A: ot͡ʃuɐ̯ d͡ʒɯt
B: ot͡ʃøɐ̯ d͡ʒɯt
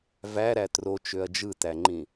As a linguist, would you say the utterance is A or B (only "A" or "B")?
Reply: B